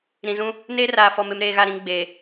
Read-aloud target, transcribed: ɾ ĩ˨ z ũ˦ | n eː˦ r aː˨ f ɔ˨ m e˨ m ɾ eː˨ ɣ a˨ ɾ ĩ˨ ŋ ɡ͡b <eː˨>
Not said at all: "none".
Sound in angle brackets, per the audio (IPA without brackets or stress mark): eː˨